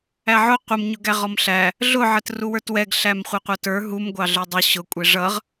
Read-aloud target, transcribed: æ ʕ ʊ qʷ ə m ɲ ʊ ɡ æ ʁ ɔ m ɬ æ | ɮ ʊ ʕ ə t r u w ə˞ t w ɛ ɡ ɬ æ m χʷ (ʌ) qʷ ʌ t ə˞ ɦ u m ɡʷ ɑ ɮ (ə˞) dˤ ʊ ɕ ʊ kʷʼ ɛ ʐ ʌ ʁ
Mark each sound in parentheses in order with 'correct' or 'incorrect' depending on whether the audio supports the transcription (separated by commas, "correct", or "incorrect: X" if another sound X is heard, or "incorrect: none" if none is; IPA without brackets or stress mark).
correct, correct